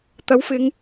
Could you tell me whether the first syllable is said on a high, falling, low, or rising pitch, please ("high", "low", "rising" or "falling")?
rising